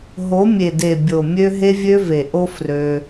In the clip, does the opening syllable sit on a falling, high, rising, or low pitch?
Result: rising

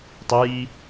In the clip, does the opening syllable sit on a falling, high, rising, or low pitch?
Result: rising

